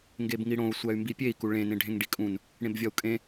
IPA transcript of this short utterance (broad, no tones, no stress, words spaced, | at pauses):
ŋɡebŋiɽõu̯ sʷæy̯mbipʲei̯ kuɭẽ nẽɖʱẽŋɖikʼũn | ɽẽbvʲɒu̯kʼẽ